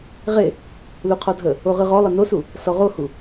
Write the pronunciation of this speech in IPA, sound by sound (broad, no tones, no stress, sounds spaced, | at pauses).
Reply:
ʁ e | l u qʰ ɔ dʱ ə | o ʁ ɯ ʁ ɔ lˠ ə n o s u | s ɔ ʁ o h u